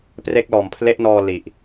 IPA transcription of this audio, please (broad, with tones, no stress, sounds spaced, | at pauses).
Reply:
p r e˦˥ k̚ l ɔː˨˩ m pʰ l e˦˥ ʔ n ɔː˧ l i˨˩ ʔ